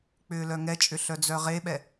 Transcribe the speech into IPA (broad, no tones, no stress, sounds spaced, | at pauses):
k͡p ʏː l œ ŋ ɛ t͡ʃʼ ʏ ɬ œ d͡z œ ʁ e ɓ ɛ